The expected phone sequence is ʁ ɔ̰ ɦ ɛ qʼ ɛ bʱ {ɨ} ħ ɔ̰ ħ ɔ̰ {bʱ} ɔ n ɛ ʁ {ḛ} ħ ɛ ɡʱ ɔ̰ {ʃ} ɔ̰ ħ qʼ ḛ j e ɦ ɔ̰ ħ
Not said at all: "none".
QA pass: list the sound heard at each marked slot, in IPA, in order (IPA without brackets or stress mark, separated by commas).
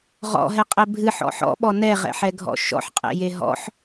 ɨ, ɓ, ɛ̰, ʃ